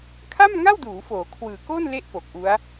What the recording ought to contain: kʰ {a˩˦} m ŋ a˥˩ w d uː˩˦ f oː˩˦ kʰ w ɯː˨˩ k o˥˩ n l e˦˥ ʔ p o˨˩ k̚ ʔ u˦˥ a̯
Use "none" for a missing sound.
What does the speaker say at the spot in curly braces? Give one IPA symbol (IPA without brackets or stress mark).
a˥˩